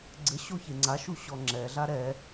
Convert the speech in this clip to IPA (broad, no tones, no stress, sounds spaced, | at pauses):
ɡ͡ǀ ɘ ɕ o ç e ŋ͡ǀ a ʃ u ɕ ɔ ŋ͡ǁ ɛ ɮ a ɾ ɛ